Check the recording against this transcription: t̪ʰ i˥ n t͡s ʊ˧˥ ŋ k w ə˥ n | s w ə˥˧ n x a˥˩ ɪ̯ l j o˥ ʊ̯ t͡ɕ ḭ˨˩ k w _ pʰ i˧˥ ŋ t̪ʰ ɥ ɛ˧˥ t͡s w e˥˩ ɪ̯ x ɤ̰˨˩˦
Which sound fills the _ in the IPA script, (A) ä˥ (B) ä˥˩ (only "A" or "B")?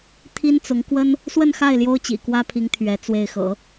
A